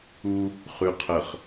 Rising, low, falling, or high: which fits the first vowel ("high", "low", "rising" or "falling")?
high